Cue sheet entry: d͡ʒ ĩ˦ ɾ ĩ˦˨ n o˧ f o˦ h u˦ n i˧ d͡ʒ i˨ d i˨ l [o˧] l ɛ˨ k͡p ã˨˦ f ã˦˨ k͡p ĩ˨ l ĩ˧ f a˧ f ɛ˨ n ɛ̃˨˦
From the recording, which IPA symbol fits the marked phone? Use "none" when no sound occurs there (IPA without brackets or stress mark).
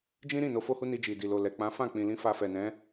o˨